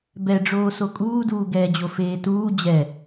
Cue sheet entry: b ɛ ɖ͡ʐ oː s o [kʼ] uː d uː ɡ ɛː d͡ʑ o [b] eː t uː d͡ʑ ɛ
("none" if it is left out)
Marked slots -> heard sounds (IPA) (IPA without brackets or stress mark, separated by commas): kʼ, f